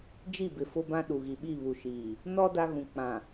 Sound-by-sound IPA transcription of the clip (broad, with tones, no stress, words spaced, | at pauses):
d͡ʒi˦˨ bɪ˨fʊ˦ bã˦ɗu˨ɣi˨ ɓi˦˨βu˨ʃiː˨ | nɔ˦ da˦ɣũ˨ k͡pã˨